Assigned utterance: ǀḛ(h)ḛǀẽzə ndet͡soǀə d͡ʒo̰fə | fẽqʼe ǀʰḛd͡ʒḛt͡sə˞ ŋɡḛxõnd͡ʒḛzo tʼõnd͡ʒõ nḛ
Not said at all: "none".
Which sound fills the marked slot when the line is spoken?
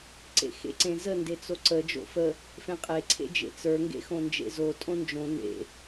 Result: x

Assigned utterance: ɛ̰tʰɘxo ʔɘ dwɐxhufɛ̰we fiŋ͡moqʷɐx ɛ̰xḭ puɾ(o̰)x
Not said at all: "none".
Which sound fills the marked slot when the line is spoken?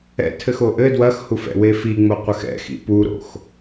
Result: o̰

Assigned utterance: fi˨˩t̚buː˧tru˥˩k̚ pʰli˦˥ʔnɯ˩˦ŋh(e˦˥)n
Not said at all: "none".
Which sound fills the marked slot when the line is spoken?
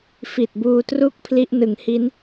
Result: i˦˥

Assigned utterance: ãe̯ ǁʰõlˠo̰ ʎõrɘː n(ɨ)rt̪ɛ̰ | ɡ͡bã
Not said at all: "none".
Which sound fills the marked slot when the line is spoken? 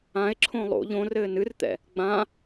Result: ɨ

